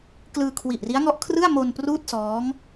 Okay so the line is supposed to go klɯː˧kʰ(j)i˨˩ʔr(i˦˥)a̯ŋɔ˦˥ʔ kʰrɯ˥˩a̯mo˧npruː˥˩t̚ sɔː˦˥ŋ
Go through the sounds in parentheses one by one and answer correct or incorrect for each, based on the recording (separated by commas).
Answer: incorrect, correct